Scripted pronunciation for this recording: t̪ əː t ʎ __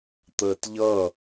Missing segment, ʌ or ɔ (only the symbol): ʌ